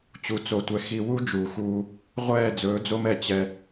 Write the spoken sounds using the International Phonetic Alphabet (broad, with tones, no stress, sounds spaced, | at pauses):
t͡ɕ u˨ t͡s o˨ tʷ ɛ˨ x i˨ w u˦ d͡ʒ uː˨ x uː˦ | ʁʷ ɛː˦˨ d͡z ɵː˨˦ d͡z o˦ m ɛ˨ t͡ɕ ɛ˦